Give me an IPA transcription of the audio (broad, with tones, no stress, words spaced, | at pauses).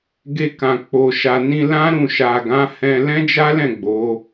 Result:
ɡe˧kã˨ k͡po˨ʃa˨ nĩ˧lã˦ ɾũ˦˨ ʃa˨ ɡã˨˦hɛ̃˧ lɛ̃˦d͡ʒa˦lɛ̃˦˨ ɡ͡bo˨˦